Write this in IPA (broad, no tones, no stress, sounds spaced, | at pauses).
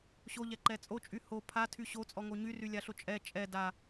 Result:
ɕ o ʎ ɛ ǃ ɛ t͡sʼ o t͡ʃʼ y h o pʰ a tʰ y ɕ o t͡sʼ ɔ ŋ o ɲ y r y lʲ a ɬ o t͡ʃʼ ɛ t͡ʃʼ ɛ d a